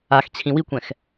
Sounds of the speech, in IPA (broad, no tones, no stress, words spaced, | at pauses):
axt͡ɕʰĩ wikʷɛ̃x